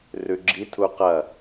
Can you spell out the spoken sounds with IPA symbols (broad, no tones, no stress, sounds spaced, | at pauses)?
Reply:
r ʉ ɡ͡ǁ i tʰ u q ɐ